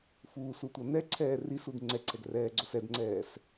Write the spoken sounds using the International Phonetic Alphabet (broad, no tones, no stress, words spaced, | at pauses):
fuːsutʷʌ nɛǀʰɛː risud ŋ͡ǀɛǀʰɛɡrɛːɡ͡ǀo sɛdŋ͡ǀɛːs